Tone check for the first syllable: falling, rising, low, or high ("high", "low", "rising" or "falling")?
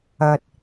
low